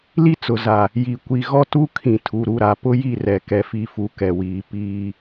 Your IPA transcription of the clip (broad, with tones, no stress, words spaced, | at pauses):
li˦t͡sʊ˨ za˨ | ji˨ kʷi˨ɣɔ˦tu˦ kʰĩ˨tʰu˨ɾu˦˨ɾa˨ pʊ˦ji˦˨rɛ˨ kɛ˨fi˨fu˨ kɛ˨wiː˨˦ piː˦